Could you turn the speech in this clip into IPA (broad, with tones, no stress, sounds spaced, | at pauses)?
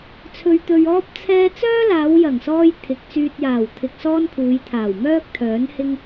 t͡sʰ ɵ˧ ɥ t̪ ɵ˧ ɥ ɔː˥ p̚ t͡sʰ ɛː˥ t͡s œː˥ l aː˨˧ w j ɐ˨˩ ŋ s ɔː˧ j t̪ʰ ɪ˨˥ k̚ t͡s yː˧ t̚ j aː˨˩ w t̪ʰ ɪ˧ k̚ s ɔː˥ n kʰ uː˨˧ j t̪ʰ aː˨˩ w m œː˥ k̚ t̪ʰ œː˨˥ n h ɪ˥ ŋ